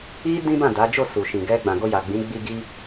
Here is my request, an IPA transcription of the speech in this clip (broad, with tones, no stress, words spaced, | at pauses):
i˦ dĩ˦bã˦˨da˨˦d͡ʒo˦˨ su˨ʃĩ˨ɡɛ˧ ɡ͡bã˨ɡo˧ja˨ɡ͡bĩ˨˦ ɡ͡bi˧ ɡi˧